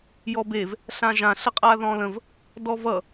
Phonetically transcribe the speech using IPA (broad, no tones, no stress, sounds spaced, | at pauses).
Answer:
j ɔ b e v | ɬ ã ʒ ã ɬ ə qʼ a ð ɔ̃ l ə̃ v | d ɔ v ʌ